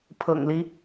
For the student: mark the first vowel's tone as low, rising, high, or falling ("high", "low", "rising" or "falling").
low